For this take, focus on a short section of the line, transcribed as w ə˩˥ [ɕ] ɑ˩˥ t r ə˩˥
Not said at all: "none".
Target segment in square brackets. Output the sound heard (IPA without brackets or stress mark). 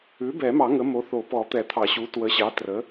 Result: ɕ